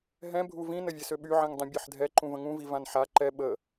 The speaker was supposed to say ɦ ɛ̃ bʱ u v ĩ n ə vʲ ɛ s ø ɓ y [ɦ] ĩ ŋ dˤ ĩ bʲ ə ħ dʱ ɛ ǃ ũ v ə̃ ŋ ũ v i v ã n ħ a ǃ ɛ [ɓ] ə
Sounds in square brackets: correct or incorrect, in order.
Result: incorrect: ʕ, correct

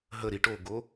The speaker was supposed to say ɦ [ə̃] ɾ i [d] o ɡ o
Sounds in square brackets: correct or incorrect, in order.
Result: incorrect: ə, incorrect: ʈ

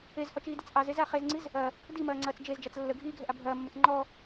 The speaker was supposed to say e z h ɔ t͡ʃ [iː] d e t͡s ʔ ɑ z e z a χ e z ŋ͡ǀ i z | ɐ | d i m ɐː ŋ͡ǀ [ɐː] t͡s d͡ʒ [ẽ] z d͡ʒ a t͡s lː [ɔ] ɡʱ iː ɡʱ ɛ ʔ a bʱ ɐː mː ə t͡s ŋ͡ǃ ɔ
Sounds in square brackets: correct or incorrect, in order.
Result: correct, correct, incorrect: e, incorrect: ə

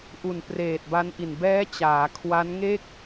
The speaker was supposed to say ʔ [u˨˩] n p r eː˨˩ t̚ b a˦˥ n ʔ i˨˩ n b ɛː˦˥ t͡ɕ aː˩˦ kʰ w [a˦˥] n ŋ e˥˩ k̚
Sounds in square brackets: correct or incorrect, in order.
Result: correct, correct

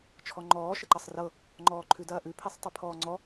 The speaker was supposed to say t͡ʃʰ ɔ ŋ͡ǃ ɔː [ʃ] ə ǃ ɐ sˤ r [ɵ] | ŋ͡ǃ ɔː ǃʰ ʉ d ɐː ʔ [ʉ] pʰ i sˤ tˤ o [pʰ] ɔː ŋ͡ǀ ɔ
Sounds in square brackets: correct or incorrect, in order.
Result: correct, incorrect: ɤ, correct, correct

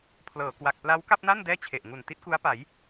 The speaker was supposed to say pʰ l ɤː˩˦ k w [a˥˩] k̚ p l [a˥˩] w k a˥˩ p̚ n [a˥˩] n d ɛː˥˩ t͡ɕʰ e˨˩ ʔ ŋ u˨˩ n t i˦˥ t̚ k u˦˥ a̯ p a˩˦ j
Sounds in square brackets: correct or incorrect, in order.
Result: incorrect: a˨˩, incorrect: a˦˥, correct

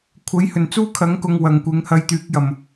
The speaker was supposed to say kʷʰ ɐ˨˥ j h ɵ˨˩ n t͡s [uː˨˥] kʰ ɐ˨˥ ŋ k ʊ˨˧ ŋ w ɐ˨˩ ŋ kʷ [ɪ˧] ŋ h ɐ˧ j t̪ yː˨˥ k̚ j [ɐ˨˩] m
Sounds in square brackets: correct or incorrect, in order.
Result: incorrect: uː˥, incorrect: ɪ˨˥, correct

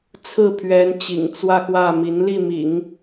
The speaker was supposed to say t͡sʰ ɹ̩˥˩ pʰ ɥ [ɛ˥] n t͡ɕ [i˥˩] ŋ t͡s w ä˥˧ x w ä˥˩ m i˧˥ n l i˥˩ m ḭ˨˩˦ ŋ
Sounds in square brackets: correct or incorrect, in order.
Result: incorrect: ɛ˧˥, incorrect: ḭ˨˩

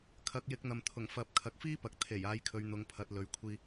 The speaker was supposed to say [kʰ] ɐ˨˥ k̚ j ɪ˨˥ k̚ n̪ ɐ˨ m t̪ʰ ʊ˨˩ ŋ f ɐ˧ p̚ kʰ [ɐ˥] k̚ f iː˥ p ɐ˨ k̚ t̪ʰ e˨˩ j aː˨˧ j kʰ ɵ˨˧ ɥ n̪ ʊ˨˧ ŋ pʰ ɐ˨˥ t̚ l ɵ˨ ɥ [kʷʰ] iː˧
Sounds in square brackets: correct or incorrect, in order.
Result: correct, incorrect: ɐ˨˥, correct

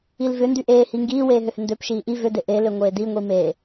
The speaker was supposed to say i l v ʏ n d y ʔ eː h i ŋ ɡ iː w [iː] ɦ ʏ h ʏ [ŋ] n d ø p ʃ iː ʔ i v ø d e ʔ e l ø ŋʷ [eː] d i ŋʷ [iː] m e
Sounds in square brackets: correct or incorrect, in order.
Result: incorrect: eː, incorrect: none, correct, incorrect: i

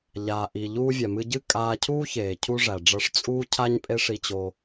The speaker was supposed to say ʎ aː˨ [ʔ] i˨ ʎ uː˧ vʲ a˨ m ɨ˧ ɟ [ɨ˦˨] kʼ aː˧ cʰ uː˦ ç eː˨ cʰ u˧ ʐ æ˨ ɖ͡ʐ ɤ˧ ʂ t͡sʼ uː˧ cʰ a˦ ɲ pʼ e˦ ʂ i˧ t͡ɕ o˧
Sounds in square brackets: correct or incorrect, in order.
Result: correct, correct

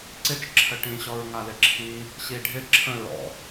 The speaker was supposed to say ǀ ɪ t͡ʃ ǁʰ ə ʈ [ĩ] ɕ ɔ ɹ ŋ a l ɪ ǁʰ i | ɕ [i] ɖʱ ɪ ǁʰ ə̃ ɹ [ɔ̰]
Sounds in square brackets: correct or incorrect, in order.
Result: correct, correct, correct

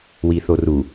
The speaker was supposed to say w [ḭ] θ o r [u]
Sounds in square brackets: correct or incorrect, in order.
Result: incorrect: i, correct

